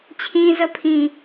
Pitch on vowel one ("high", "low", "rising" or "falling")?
high